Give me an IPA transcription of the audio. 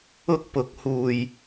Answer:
ʊ˥k̚pʊ˨˥k̚ huː˨˩j

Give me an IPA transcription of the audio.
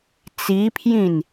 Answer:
t͡sipʰjĩn

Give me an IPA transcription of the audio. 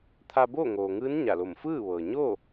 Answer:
t̪ʰa˧boː˥˨ŋoː˩ŋɯː˧˥n ɲa˧˩lo˧˩m fɯː˥˨ʋɤː˩ ɲoː˥˨

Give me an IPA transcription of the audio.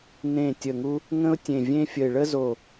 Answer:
nẽ˨˩ tʲə˨˩ŋu˧ | ŋə̃˧ʊ̯ tʲẽ˨˩ vʲẽ˧fʲə˨˩ɪ̯ ɭə˧zo˨˩

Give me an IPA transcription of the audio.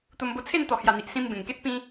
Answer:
t̪o˧mbo˧t͡sʰe˥˧n t̪ɔ˨˩hja˨˩n̪i˨ʔ sĩ˧m bẽ˨˩ŋke˦t̚ pĩ˦

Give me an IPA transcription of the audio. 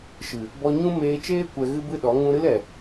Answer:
ʃɨ˨ | bɔ˧ɲũ˦ meː˧t͡ʃeː˦ kʷɛ˧ɣɨ˦bɨ˦ɗɔ˨˦ ŋũ˧ɾɨ˦lɛ˨

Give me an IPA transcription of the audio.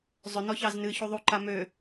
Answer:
zˤʏ nɔçɑznɨ çuðˤu ǃamø

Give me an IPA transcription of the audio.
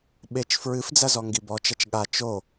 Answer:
ɓet͡ʃ fɹɨfd͡zɐzɔ ŋɡibɔt͡ʃɐt͡ʃ ɠa t͡ʃo

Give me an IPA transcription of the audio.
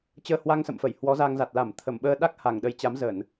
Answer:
t͡ɕəː˧hwa˧ŋsə̰˧˨mfə˧˩j hwɔ˨˦za˧ŋ za˨˩t̚la˧˩m t̪ʰə˧˩m ɓəː˧ɗa˦˥k̚ ha˧˩ŋɗə˨˦j t͡ɕa˨˦mzə˧˩˨n

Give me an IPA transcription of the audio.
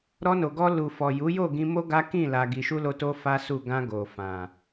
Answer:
ɾɔ˧no˨ɡɔ˧ lu˨fɔ˨ ju˨˦jo˦˨ɡĩ˧ mo˦ ɡa˦ kĩ˦˨ la˧ɡi˧ ʃu˦lo˧to˦ fa˦su˦˨ ɡã˧ɡo˨ fã˨

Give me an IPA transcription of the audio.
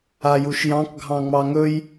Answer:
ajuʃjɑ̃k ɡʱɑ̃ŋ͡mɑŋɵj

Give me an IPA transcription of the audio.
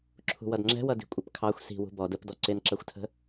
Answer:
ǁʰṳwʌdŋ͡ǁɛ̤wʌ di̤kʷʼəpkʰɑxʷ si̤wṳ bɔd əpdɔ ǀɪnǁɜxʷtʰə̤

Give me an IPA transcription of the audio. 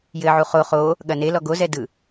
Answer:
jɘʕu χo χo | ɠɐne lɔɡozɛdɯ

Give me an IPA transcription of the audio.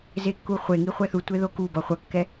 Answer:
zekːuχʷeŋi χʷɛθutʷe ðokubʌ χʷʌkːɛ

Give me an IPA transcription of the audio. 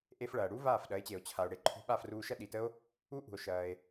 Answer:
ʔe˧fɭɐː˩ɽu˥ vaː˥˩fɗɐ˩˥e̯t͡ɕe˩o̯ t͡ɕʰa˩o̯ ɽe˩˥ǃʰṳ˧ ɓa˥˩fruː˧ʃɐ˥ ɗi˩tə˥o̯ | u˥ ʔṳ˩o̯ʃɐː˩e̯

